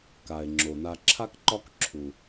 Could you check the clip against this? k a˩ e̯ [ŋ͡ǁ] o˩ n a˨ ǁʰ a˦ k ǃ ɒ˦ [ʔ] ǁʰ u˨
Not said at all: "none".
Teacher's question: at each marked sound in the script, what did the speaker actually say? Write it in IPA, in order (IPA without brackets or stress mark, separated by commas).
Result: ŋ͡ǁ, k